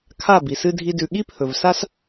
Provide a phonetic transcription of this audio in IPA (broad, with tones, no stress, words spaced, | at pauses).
kʰa˦˨ bi˨sɨ˦dʱi˦dʉ˧ ɠi˦pʰɵ˨v sa˦s